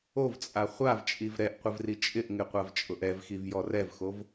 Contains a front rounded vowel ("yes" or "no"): no